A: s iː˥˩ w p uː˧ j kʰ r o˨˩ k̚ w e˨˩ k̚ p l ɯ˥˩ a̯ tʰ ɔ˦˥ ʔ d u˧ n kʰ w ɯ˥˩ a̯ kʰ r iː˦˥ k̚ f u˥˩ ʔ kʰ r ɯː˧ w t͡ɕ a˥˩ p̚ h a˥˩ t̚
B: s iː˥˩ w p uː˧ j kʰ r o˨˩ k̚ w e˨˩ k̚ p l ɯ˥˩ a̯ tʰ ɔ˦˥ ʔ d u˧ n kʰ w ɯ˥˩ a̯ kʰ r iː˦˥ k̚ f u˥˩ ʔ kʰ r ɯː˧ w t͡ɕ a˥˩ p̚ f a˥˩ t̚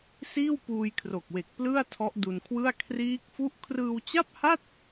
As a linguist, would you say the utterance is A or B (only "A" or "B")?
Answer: A